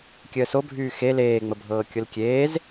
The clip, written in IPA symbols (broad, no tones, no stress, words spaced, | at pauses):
kʲəːsobʱyː xe leːŋ͡məbʱɤː kʲʊlkʲeːz